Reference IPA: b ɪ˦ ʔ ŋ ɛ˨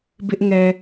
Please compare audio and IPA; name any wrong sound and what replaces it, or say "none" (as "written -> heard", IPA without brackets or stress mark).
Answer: none